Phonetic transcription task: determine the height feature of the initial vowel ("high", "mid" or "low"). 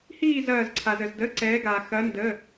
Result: high